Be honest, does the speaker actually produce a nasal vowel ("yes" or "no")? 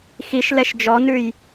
no